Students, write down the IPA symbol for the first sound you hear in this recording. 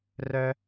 r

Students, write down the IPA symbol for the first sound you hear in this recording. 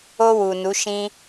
o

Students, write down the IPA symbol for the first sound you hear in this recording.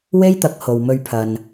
w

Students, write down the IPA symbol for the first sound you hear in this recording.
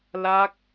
l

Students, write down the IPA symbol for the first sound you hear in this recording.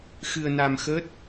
x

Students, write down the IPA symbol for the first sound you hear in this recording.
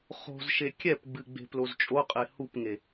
χ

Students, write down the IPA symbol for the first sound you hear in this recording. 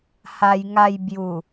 h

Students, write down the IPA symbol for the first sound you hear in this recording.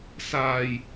s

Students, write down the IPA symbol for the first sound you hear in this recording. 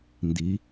n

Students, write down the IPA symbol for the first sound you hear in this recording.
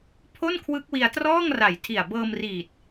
pʰ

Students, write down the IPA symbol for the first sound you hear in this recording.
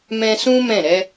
m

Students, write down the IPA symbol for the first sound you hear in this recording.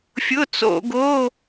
fʲ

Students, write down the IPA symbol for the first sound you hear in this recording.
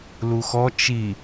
l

